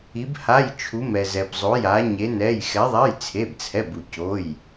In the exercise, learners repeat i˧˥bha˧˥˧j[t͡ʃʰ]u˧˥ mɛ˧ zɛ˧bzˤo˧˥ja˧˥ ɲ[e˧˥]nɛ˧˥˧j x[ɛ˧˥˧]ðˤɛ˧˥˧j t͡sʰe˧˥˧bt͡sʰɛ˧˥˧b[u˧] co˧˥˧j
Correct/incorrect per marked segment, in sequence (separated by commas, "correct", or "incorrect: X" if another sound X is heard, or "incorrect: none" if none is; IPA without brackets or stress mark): correct, correct, incorrect: ɛ˧˥, correct